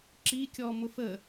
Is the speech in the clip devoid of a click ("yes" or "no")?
no